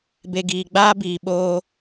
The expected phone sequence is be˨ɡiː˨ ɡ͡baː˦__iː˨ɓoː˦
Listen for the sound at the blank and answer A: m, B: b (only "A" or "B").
B